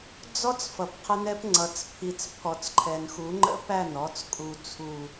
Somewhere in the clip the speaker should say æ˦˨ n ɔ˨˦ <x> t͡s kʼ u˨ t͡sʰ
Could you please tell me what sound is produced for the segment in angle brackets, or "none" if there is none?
none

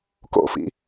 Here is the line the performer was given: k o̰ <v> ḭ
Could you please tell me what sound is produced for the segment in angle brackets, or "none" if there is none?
f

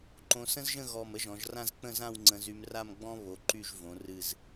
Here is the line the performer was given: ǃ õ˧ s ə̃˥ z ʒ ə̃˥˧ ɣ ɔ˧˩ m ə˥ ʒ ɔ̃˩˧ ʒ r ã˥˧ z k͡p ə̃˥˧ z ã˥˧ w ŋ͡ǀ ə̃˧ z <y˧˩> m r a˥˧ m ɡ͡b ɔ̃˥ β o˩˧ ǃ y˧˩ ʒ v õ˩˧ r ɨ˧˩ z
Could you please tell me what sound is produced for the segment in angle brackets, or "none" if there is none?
y˧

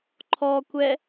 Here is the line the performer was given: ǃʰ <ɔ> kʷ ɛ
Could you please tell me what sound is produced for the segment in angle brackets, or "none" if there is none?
ɔ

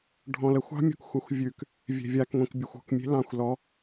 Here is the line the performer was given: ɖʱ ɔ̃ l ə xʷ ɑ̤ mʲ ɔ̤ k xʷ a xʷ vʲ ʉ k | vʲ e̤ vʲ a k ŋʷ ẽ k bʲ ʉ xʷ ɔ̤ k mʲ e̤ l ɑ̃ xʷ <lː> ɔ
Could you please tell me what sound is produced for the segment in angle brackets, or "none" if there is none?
l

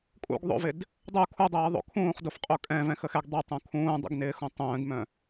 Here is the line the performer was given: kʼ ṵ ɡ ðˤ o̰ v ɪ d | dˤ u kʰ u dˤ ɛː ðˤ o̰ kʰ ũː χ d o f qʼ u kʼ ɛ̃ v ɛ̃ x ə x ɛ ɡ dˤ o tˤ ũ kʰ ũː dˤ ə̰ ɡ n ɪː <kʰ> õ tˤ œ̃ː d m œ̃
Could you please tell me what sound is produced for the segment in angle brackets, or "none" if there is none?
x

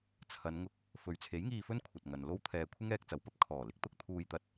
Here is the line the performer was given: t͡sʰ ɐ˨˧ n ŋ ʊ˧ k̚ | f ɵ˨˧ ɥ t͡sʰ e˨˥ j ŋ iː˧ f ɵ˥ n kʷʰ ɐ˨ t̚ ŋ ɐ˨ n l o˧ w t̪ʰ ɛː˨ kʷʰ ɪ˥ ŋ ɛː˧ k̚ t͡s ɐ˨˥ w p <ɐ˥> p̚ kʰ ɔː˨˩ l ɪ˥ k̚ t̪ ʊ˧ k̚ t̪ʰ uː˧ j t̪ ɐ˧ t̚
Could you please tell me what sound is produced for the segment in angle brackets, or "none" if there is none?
ɐ˥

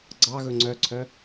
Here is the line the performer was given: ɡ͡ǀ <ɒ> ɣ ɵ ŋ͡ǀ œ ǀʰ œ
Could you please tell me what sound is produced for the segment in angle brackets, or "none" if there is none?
ɑ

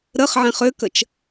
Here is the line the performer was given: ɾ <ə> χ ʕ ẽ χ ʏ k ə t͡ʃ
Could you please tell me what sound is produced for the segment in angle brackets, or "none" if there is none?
ə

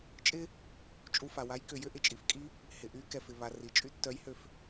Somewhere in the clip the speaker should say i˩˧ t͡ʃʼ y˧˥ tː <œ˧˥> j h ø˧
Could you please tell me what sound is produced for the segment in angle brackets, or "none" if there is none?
œ˧˥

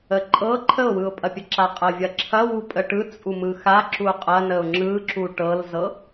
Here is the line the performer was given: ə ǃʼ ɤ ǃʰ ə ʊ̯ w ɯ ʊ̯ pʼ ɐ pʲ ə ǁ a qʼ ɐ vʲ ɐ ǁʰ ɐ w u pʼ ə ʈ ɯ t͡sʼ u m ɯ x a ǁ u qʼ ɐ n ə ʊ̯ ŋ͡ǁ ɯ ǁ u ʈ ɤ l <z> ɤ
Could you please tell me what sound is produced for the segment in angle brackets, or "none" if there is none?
z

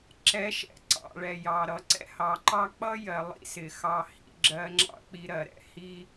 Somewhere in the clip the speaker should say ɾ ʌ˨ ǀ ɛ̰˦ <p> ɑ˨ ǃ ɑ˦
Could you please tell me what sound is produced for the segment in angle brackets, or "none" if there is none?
h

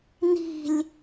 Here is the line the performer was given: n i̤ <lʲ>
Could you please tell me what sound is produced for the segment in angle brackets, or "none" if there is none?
lʲ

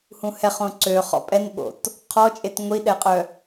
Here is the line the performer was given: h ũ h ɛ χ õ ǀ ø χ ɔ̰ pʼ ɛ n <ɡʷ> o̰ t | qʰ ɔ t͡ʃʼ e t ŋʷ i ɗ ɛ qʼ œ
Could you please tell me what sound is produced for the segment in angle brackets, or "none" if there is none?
ɓ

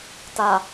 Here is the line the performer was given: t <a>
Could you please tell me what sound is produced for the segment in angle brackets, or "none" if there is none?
a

